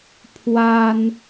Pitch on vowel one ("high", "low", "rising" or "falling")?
high